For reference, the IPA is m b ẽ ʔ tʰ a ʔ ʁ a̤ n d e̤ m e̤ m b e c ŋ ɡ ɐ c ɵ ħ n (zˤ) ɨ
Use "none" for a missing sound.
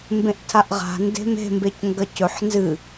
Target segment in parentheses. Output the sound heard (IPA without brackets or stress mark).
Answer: z